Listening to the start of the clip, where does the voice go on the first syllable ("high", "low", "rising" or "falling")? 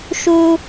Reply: high